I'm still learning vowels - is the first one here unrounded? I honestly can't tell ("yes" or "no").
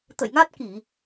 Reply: yes